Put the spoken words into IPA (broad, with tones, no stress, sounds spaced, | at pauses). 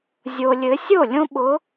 zʲ o˨ lʲ ɘ˨˦ sʲ o˥˩ lʲ õ˦ ɓ ʊ˨˦